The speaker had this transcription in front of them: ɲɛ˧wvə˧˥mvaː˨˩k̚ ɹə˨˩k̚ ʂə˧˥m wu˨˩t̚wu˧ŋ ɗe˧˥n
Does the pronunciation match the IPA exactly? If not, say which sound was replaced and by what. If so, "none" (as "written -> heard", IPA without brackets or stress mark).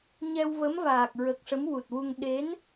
none